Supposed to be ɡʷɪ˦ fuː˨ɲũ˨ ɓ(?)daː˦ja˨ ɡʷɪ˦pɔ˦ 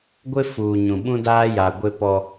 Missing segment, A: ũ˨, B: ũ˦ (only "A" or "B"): B